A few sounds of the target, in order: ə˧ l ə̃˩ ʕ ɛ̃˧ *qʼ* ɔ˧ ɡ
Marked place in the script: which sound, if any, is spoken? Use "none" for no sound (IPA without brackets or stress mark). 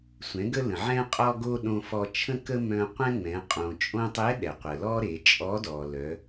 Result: qʼ